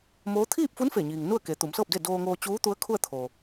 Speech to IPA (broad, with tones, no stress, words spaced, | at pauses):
moː˧˥ t̪ʰiː˥˨p̚fu˧˥n fe˧˩ɲiː˩ŋnu˥˨ə̯ ke˩˧t̪u˩˧msɤː˥˨p̚de˥˨ doː˧ŋoː˧t͡ɕuː˧˥ t̪u˧˥ə̯kʰu˥˨ə̯t̪ʰoː˩